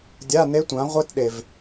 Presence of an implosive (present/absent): present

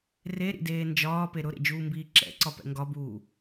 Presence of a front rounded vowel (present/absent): absent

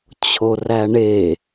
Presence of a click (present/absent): absent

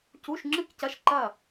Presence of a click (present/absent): present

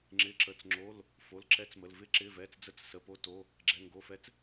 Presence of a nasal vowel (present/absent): absent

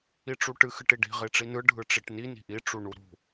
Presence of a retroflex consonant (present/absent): present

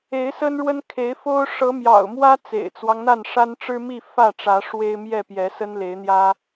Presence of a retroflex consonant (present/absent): present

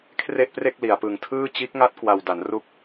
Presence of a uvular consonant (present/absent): absent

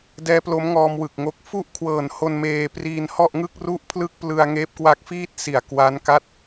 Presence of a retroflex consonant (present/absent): absent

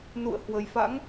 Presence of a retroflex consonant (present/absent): absent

